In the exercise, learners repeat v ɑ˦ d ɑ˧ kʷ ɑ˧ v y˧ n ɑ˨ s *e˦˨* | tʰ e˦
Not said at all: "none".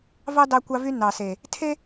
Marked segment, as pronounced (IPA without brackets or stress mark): e˨